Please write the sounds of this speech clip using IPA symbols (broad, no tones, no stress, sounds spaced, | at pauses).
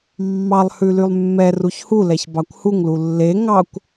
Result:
mː ɑ lˠ h ʉ l y lˠ mː ɛ r u ç h u l ɛ ç b ɑ kʷ h u ŋ l u lː e ŋ ɑ kʷ